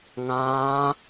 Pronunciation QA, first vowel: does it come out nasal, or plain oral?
nasal